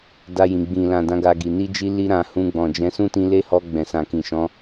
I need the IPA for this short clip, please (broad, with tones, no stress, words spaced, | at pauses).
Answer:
da˧jĩ˨ ɡ͡bĩ˨lã˨ dã˨˦ɡa˧ɡi˨ ni˧d͡ʒi˧li˧ɾã˨ hũ˧ɡ͡bɔ̃˨d͡ʒɛ̃˨˦ sũ˦tĩ˧le˦hɔ˧ ɡ͡bɛ̃˨sã˨kĩ˨ʃɔ̃˨˦